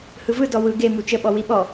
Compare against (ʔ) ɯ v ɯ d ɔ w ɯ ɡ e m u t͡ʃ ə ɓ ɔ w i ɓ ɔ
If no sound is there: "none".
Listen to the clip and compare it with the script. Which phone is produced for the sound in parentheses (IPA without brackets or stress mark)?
h